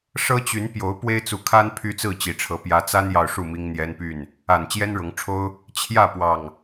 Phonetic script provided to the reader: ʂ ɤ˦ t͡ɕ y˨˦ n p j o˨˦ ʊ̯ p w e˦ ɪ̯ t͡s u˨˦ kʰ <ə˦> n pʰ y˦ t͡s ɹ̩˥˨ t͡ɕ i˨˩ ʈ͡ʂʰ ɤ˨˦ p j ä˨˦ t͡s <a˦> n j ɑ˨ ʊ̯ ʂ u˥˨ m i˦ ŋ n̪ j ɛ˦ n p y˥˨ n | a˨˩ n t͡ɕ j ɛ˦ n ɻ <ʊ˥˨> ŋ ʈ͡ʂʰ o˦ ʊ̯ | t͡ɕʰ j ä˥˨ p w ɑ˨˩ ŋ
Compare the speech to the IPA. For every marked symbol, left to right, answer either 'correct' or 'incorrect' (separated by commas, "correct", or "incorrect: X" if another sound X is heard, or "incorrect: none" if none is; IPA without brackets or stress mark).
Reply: incorrect: a˦, correct, incorrect: ʊ˨˦